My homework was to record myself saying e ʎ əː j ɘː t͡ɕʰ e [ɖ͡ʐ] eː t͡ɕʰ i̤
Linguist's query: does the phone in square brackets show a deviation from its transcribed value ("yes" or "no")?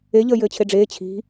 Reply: no